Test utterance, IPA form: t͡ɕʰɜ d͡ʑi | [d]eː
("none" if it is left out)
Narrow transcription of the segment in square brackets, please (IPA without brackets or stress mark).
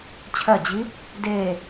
d